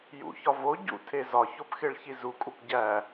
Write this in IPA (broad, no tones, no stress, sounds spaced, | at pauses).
j ṵ ç ɒ v o ɟ ṵ tʰ e z ɒ ç o p x e ɭ ç i z u kʼ u p ɟ æ